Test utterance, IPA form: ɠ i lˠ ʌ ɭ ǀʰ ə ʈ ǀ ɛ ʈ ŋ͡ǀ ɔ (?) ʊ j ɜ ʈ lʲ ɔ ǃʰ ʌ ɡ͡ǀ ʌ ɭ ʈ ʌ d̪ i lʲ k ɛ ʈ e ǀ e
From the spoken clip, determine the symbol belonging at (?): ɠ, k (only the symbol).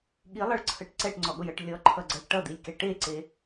ɠ